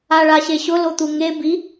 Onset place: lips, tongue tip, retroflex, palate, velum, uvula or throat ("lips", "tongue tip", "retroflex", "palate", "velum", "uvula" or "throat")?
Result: retroflex